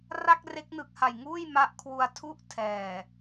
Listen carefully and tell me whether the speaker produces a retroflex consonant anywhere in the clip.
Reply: no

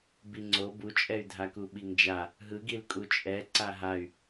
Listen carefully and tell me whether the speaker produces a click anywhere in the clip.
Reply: yes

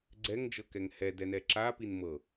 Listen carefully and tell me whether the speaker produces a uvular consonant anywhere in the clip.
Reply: no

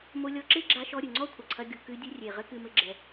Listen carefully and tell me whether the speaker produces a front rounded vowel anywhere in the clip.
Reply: no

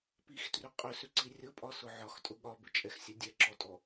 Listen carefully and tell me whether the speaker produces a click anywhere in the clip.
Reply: yes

